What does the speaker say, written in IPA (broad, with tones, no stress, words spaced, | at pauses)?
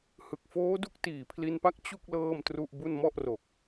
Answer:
hɯ˨˩k̚foː˦˥du˦˥k̚ tiː˨˩pʰli˧npa˦˥k̚ t͡ɕu˥˩k̚ lɤː˥˩mtru˥˩ʔbu˥˩n mɔ˥˩ʔro˨˩k̚